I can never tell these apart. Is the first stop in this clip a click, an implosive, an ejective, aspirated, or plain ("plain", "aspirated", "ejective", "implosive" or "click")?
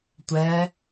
plain